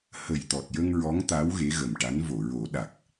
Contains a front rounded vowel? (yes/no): no